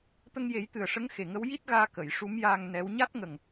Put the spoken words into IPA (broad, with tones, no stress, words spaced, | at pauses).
t̪ə˧ŋje˨˩˦jt̪ɨ˨˩ə̯ʂə˧˥ŋ xe˨˩ŋə˧˥wji˦˥t̚ɣaː˧ kə˨˩˨j ʂu˧˥mjaː˧ŋ nɛ˧˥w ɲa˦˥t̚ŋə˨˩ŋ